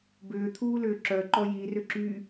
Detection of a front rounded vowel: present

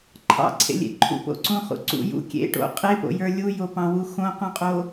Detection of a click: present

